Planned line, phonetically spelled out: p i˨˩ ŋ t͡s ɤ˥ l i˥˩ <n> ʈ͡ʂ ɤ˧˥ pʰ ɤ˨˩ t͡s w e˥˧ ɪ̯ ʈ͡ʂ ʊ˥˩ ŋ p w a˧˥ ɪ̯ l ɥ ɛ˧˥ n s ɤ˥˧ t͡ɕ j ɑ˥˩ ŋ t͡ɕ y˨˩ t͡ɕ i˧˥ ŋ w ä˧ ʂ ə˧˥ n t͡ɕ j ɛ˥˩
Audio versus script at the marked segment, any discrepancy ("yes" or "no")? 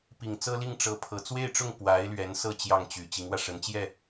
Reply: yes